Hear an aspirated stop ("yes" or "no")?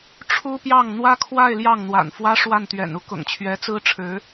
yes